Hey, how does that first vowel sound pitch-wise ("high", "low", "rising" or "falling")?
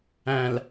low